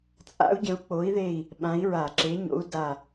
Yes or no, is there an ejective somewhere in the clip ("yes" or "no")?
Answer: yes